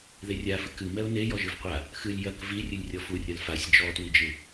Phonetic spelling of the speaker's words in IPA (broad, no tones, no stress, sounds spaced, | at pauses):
ð e rʲ a f ɨ k ɨ m ɛ ʊ̯ n e j ɔ ʒ ɨ v qʷ a | x ɨ lʲ j ɐ k v i rʲ ɨ lʲ rʲ ɔ f u rʲ ɐ l f a sʲ d͡ʒ ɔ t w i d͡ʒ ɨ